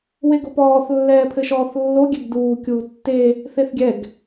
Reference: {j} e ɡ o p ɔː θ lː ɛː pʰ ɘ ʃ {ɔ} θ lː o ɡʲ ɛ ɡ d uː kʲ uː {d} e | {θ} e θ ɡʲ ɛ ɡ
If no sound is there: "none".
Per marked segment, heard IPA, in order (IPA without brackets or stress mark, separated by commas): w, ɔː, tː, θ